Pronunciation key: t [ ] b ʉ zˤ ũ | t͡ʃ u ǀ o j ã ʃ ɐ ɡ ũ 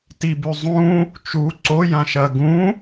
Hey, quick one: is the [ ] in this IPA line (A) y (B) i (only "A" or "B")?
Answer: B